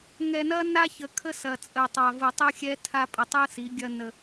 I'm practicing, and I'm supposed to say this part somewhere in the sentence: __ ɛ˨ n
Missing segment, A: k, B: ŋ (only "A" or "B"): B